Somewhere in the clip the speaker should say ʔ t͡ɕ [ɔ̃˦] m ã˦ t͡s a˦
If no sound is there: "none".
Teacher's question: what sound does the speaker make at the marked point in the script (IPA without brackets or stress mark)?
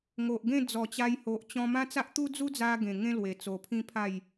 ɔ̃˧